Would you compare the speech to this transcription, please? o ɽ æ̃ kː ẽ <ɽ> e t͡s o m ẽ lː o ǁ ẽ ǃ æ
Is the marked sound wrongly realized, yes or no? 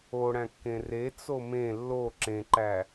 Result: yes